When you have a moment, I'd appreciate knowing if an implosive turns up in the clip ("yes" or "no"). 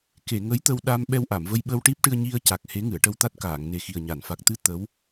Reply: yes